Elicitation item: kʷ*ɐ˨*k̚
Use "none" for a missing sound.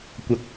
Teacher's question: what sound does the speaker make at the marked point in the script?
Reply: ɐ˨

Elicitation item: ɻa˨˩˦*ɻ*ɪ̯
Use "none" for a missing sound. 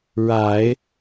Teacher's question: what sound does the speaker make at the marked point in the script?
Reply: none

